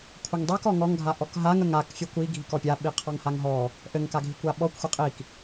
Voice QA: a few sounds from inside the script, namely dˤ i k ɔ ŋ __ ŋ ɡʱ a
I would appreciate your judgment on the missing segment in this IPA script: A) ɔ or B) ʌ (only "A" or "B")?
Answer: A